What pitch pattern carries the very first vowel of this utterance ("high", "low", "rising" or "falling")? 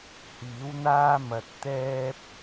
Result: rising